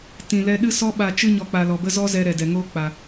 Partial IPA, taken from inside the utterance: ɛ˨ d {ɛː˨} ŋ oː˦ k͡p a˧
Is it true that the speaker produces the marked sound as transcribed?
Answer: no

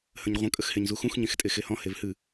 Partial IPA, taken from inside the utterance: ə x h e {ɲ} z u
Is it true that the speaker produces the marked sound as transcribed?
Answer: yes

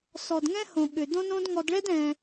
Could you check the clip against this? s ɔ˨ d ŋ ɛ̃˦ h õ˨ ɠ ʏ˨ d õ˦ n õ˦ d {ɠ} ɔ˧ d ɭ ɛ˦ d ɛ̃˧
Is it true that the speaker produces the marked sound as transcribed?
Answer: no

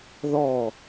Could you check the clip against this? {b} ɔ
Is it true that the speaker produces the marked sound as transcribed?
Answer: no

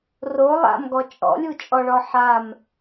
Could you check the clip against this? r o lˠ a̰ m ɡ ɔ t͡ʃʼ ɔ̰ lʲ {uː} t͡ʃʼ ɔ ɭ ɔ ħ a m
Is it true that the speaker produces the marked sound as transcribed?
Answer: no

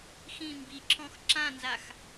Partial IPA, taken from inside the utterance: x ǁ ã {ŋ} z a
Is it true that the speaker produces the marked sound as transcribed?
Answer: no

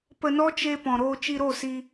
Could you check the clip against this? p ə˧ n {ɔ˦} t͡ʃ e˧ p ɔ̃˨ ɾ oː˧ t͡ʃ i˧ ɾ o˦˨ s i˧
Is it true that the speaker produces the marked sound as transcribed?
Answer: yes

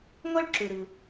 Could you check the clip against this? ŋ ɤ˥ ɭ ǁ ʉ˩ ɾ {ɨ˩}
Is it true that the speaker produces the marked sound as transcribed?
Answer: yes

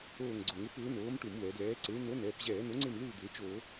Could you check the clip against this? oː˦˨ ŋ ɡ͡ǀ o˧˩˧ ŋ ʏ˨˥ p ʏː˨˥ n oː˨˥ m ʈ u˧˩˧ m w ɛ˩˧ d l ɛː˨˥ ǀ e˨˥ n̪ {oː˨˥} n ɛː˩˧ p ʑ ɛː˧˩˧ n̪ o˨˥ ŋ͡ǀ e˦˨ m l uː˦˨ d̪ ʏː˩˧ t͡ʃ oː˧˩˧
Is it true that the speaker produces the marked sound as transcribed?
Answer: no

